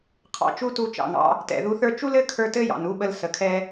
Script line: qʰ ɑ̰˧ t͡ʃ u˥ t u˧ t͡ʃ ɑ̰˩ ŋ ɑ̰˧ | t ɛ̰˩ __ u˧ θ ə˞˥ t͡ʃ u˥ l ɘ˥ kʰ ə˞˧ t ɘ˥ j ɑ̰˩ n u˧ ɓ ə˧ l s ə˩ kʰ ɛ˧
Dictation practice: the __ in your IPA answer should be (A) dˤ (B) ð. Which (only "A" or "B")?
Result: B